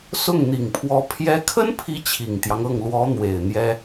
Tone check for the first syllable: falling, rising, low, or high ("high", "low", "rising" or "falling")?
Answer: falling